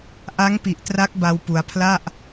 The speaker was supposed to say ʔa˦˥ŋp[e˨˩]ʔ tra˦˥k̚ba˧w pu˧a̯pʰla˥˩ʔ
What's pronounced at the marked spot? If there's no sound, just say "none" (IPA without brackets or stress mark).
i˨˩